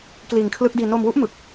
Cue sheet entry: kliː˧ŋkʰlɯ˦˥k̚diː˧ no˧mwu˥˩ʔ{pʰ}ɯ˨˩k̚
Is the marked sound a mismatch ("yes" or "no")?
yes